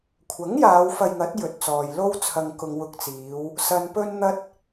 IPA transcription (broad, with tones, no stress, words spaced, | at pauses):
kʷʰɐ˨˥ŋ jaː˨˧wfɐ˧jŋɐ˨˥t̚ jɵ˨t̚t͡sɔː˨jlo˥w t͡sʰɐ˧ŋkʊ˧ŋ wʊ˧k̚t͡siː˨˧w | sɐ˨npɵ˧nn̪ɐ˧t̚